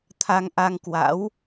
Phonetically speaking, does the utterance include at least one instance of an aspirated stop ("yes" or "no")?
yes